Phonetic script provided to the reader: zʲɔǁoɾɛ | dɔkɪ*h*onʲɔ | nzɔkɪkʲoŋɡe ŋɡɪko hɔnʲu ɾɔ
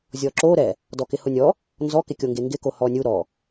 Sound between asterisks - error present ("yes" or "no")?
no